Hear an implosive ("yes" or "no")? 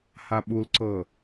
yes